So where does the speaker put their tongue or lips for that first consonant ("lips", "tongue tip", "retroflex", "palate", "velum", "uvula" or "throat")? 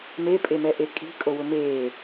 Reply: lips